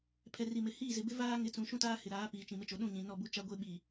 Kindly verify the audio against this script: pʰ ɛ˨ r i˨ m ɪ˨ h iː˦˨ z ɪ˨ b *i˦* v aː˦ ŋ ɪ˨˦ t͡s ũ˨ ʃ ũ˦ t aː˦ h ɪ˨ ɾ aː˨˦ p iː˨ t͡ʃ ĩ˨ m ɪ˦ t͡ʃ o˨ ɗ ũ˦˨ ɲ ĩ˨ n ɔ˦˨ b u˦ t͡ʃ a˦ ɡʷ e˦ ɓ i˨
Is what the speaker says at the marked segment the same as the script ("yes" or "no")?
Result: no